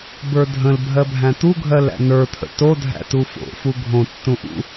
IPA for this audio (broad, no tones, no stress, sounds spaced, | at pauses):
b ə˞ dʱ ə̃ l bʱ ɜ bʱ æ̃ t̪ u ɡʱ ɜ l æ̰ n ə˞ t̪ʰ ə̰ t o dʱ æ̰ t u f o̰ f u ɡʱ õ tː ũ ʔ ṵ